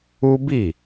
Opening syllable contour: high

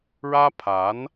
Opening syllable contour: high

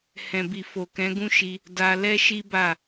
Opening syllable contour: low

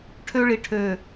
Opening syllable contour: high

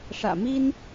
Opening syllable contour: low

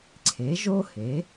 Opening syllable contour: rising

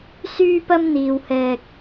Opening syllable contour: high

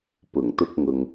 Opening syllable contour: low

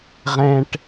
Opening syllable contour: high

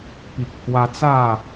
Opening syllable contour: low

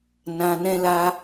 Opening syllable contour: low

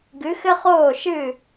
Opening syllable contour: rising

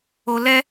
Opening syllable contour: high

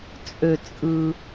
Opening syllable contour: low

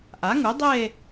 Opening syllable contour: rising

